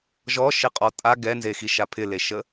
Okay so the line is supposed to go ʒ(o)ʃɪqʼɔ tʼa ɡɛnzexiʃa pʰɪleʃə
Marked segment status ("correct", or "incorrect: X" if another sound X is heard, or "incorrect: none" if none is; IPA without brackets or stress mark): incorrect: ɔ